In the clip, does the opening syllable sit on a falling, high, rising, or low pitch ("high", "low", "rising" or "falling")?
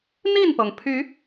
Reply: falling